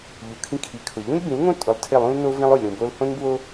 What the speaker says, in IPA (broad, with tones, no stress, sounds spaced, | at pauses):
ʎ u˨ kʰ ĩ˦ kʰ i˨ kʰ ʊ˨ ʎ ũ˦ lʲ b ĩ˨˦ l ŋ õ˦ tʼ ʊ˨ lˠ tʰ ɪ˦˨ lˠ ũ˦ l n o˦ v ĩ˦ lˠ o˨ lʲ ɾ ũ˨ b o˦ l h õ˦ n b w o˦